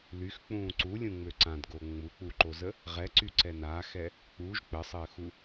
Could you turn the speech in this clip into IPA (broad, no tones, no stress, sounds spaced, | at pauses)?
l y x k͡p ũː ǀ u lʲ ũ ŋ͡m ø ǀ ã d ɡ o ŋ͡m u k͡p u ǃ o z ə | ʁ ɛ ǀ y ǀ ɛ n a x ɛ | k͡p u ʒ k͡p ə sˤ əː x u